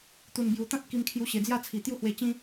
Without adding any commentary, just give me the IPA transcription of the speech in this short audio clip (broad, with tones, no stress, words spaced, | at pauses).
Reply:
t̪u˨˩nbju˨˩t̪ã˦t̚ ki˧mkʰju˧ɕe˨˩d͡zja˥˧ t͡sʰi˨˩t̪ju˦hwe˧ t͡ɕĩ˦